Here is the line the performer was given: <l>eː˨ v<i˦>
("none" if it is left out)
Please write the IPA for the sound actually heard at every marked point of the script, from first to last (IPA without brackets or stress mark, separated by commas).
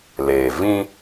l, ĩ˦